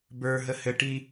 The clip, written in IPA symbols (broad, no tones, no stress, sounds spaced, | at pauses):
b ə˞ ɦ ə h ɘ ʈ i